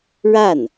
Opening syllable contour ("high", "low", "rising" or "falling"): falling